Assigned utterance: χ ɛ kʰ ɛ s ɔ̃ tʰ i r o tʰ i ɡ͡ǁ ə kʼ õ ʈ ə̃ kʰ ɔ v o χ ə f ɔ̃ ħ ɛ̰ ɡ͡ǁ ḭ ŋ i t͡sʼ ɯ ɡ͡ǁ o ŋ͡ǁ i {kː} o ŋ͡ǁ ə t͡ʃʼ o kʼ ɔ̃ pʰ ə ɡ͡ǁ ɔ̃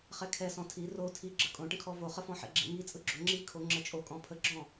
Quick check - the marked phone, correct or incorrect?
incorrect: kʰ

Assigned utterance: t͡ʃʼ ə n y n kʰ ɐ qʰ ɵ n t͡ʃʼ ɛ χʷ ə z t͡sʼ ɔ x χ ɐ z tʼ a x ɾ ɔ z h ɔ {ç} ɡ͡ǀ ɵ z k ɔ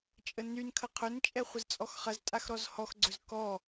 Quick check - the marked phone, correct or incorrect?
incorrect: x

